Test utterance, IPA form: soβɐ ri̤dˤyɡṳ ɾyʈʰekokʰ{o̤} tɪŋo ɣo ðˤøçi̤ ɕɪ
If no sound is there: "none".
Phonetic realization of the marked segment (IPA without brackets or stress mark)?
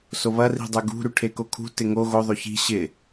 ṳ